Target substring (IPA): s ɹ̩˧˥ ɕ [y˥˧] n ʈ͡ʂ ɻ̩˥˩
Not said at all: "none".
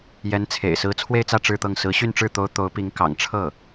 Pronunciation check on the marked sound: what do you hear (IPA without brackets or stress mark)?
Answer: y˥˧